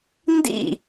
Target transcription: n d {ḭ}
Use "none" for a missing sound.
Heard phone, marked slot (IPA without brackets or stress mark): ḭ